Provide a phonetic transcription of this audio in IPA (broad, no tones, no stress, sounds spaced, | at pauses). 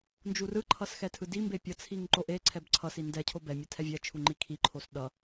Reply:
n d͡ʒ u r ɯ ǃʰ ʌ s x ɛ tʰ ɯ d i m b e pʲ ʌ t͡sʰ i ŋ ǃ o ʔ e ǀʰ ɛ b ǀʰ ʌ s i n d ɛ cʰ o b ɛ mʲ ɛ tʰ ɛ vʲ ɛ t͡ʃʰ u ŋ͡ǃ i kʰ i ǃʰ o s ɗ ʌ